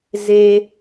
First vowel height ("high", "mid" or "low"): mid